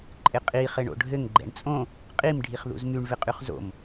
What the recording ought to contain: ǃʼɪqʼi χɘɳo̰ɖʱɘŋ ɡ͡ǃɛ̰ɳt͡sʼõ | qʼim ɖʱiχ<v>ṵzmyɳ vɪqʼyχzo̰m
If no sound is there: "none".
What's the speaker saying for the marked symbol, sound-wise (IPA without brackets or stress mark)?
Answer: ð